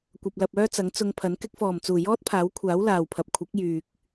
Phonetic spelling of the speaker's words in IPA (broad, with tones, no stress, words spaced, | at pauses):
kʷɐ˨p̚lɐ˨p̚ œː˥t͡sɐ˨˥ŋt͡sʊ˧ŋpʰɐ˨˥n kɪ˧k̚fɔː˨˩mt͡suː˨˩ jɔː˥t̚pʰaː˨˥wkʷʰaː˨˥w laː˨wpʰɐ˨p̚ kʷʰɪ˨˥k̚ jyː˨k̚